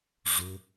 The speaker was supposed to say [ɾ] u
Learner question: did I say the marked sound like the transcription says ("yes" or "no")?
no